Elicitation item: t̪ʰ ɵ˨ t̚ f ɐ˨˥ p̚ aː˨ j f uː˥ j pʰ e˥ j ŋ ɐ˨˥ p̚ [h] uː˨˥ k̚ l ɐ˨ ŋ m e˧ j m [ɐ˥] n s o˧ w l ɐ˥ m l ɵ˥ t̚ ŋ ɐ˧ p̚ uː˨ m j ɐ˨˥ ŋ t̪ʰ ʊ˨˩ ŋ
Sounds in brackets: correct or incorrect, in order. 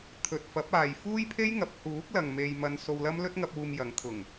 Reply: correct, incorrect: ɐ˧

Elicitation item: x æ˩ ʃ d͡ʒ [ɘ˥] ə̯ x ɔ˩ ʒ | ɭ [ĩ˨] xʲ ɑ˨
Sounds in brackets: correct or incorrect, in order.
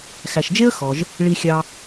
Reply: incorrect: e˥, incorrect: i˨

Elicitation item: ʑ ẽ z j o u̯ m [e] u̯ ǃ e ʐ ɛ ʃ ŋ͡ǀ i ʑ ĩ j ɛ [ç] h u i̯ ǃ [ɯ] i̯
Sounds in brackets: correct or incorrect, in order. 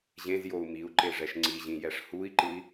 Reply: incorrect: i, incorrect: ʂ, correct

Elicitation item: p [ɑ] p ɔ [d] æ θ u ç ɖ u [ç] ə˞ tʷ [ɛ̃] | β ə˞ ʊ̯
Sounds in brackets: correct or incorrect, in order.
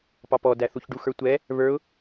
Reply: correct, correct, incorrect: x, incorrect: ɛ

